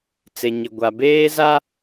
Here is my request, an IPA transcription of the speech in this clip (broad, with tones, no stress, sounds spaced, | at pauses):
t͡s e˨ ɲ ɪ˨ ɡʷ a˨ b eː˦ z a˦